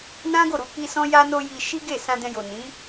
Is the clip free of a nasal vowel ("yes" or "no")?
no